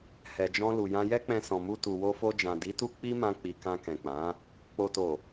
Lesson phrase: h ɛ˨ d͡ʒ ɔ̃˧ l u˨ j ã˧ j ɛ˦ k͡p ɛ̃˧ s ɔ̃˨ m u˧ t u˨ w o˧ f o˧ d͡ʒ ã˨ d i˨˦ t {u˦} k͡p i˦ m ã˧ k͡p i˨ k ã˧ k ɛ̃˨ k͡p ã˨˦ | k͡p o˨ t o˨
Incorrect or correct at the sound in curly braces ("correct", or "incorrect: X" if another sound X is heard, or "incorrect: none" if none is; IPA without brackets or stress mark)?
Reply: correct